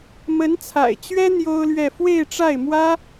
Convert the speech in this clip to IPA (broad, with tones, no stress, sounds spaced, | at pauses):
m ə˧˥ n t͡sʰ a̰˨˩ ɪ̯ t͡ɕ ɥ ɛ˥ n̪ j o˥ ʊ̯ l ɥ ɛ˥˧ f w e˥˧ ɪ̯ ʈ͡ʂ a˥˩ ɪ̯ m w ä˥